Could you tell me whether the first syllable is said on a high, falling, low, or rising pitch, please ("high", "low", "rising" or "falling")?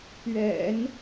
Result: low